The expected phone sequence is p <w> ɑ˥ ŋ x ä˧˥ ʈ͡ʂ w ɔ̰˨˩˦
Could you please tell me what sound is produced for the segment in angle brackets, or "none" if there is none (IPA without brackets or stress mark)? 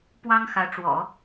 w